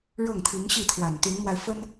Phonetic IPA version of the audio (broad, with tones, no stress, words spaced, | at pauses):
ɻɤ˥˩ŋt̪ʰi˧˥ŋɕi˥˩t̪ʰwa˨˩n t̪y˧˥nmwa˧ɪ̯ fə˥n